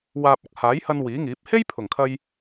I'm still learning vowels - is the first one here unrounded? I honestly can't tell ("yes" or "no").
yes